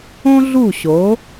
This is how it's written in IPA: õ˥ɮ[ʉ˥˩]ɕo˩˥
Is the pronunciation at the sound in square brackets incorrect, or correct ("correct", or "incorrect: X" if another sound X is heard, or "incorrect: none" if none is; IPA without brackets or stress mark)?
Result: incorrect: u˥˩